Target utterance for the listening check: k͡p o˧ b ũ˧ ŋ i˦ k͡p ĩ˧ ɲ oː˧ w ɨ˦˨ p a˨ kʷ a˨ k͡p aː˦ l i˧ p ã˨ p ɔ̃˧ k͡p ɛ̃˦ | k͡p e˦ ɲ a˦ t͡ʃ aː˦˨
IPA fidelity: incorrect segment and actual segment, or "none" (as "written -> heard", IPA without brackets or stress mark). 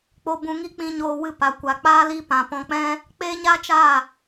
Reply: none